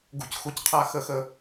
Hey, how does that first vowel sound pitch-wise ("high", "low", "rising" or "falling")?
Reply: low